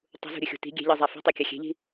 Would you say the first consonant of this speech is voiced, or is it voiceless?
voiceless